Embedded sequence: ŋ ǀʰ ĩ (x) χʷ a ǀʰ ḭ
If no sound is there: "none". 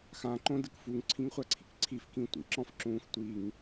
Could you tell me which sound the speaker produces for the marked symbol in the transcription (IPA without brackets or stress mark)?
ŋ